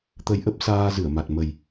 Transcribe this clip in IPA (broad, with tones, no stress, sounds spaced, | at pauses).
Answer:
t̪ ə˧ j ʔ ə˦˥ p̚ s aː˧ z ɨ˧˩ ə̯ m a˨˩ t̚ m ə˨˩ j